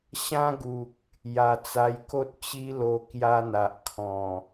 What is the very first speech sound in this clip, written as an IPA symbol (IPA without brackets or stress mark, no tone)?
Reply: ɕ